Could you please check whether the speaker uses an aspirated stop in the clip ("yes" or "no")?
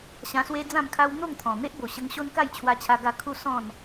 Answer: yes